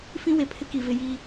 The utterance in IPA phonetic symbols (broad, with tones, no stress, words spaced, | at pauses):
fĩ˦we˨pʰɪ˦ ki˨vɪ˦ jiː˦